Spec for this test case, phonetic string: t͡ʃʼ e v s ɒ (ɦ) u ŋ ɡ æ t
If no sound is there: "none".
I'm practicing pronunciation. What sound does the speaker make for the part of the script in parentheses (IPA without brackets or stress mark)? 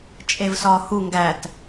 h